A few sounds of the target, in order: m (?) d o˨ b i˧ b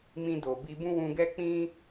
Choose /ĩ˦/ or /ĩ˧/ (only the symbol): ĩ˧